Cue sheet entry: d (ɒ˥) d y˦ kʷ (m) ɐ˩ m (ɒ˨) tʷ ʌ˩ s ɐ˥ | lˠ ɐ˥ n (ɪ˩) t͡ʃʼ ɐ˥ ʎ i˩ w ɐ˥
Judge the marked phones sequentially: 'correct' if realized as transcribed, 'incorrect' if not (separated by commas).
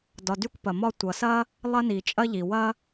incorrect, incorrect, incorrect, incorrect